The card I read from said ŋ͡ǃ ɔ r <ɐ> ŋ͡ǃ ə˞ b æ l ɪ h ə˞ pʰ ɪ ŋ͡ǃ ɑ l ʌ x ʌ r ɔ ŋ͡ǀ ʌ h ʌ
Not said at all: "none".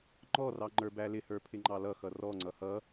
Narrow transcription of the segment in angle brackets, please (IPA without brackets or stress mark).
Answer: ɑ